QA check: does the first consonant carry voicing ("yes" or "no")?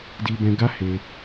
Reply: yes